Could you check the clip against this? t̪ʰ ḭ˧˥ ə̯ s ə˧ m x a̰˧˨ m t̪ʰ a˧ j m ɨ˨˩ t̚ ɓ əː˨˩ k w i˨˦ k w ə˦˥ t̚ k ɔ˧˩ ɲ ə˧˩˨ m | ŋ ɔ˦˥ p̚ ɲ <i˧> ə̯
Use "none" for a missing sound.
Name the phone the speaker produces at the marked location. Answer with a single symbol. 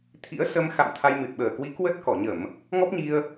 i˧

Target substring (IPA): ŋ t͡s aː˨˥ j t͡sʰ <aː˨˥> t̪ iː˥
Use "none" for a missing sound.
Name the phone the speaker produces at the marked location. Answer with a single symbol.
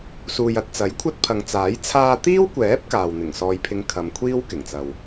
aː˧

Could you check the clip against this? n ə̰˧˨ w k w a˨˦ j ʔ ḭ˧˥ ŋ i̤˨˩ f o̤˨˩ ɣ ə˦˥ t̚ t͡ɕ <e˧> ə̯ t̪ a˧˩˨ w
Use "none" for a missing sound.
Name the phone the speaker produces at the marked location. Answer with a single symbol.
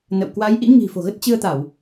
ɨ˧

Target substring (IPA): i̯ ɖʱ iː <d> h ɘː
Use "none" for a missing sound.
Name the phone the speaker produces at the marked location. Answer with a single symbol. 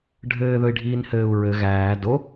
n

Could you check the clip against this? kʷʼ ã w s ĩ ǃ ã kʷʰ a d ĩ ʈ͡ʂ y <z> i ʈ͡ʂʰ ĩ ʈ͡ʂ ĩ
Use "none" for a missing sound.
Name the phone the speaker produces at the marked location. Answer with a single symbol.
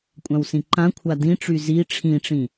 z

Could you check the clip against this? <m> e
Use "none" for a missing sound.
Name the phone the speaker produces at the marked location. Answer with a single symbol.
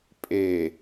pʼ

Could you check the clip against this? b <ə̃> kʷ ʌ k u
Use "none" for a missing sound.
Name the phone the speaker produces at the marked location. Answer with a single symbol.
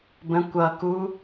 ə̃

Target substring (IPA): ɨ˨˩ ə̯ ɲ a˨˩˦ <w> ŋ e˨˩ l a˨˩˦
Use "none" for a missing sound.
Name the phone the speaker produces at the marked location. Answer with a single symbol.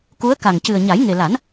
j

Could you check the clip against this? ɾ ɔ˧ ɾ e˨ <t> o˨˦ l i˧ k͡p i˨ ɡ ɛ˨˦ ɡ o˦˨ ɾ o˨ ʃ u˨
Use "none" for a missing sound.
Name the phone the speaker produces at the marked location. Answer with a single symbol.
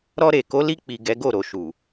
k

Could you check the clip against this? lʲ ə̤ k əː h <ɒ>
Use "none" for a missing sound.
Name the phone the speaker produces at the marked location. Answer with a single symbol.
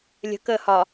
ɒ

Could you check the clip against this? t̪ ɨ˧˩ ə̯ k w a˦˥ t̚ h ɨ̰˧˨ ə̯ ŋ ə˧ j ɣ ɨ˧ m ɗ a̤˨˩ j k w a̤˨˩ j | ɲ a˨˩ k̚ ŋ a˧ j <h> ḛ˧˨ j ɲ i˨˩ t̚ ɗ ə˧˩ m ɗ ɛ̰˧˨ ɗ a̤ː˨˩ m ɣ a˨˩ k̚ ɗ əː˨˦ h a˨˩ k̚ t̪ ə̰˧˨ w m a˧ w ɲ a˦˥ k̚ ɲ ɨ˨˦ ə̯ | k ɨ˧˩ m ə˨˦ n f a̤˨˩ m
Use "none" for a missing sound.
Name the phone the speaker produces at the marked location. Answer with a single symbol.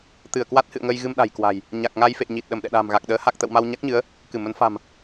f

